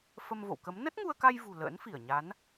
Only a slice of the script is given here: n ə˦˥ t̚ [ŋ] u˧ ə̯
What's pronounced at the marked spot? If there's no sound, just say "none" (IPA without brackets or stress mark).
ŋ